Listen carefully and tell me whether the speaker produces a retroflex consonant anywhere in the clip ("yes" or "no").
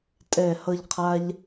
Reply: no